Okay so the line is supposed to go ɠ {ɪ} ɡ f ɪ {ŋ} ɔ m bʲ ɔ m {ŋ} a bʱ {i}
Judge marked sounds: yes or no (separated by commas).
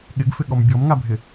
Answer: yes, no, yes, no